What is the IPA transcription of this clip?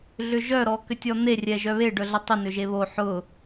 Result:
ɮʏʒœ ɾɔkʏtʲɔn̪e rʲɛʒœβe ɖœɮətˤʏ nʏʒeβo ħʊ

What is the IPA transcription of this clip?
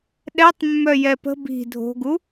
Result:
ɗɛtˤmːœ jɛpə̤ bi̤ dʱo̤ɡu

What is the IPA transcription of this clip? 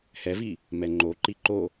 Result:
hɛvi | mɛŋ͡ǃoǃi ǃo

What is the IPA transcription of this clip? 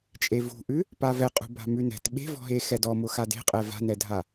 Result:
t͡ʃʼevṳʔʉ | pavɛqʼṳ ba̤mʉnɛ̤t ɓe̤vɔ̤ɦe xɛdɔmʊ xade̤qʼɛ va̤nɛdʱa

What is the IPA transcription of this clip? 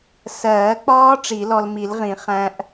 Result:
sɜː˨˩˦k͡pɒː˦˥ ʈ͡ʂi˨˩˦lɔ˧lmi˨˩˦lʁĩ˨˩˦ χæ̃˦˥ʔ

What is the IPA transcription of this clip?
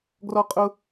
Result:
ɡrɔ˦qʼʊ˦

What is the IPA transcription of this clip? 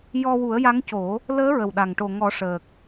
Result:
jɔ˧wu˨˩˦ə̯ja˧˥ŋco˨˩˦ | ləː˧˥ɹə˨˩wɗa˨˩ŋʈo˨˩ ŋɔ˨˩˦ʂəː˨˩k̚

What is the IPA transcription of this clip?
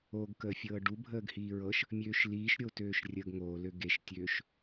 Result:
oɡkəːfʲɤː ɖu bʱəːɡhiːɹɤʃ | mʲøːʃliːʃɾʲo tøːʃrʲəːɡŋoːlø ɡeʃtʲøːʃ

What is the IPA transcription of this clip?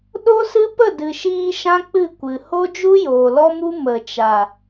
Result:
ɗo˦sɨ˦ pə˦˨dɨ˨ʃiː˧ ʃã˦k͡pɨ˦˨kʷɨ˨ ho˦d͡ʒu˦joː˨ lɔ˦mu˦ mə˨t͡ʃa˨

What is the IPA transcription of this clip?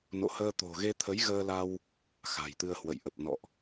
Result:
no̰˧˨həː˧t̪o̤˨˩ ɣe˧t̪ʰə˨˦j ɣəː˧la˧w | xa̤˨˩jt̪ɨ˧ə̯hwə̰˧˨j ʔə˨˩p̚nɔ̰˧˨ʔ

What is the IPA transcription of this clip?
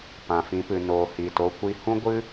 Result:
pã˨fĩ˨˦pɨ˨ noː˨hiː˨to˧kʷi˧ hũ˦ɡʷɨ˦

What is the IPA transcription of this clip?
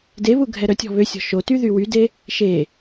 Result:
deβu ɡʱɛɾœtʲɔ̤ βøsʲɔ̤ ʃoty ðywyde | ʃe

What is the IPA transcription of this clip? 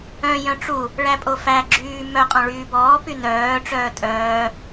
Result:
œ̃ jœ̃ʈ͡ʂu | ɭæpʼofæ ɡ͡ǁyːmœ qʼɔ̃ɭyːbɔː pynœː ʈ͡ʂœːtʼœː

